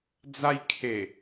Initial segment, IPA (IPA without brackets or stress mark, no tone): d͡z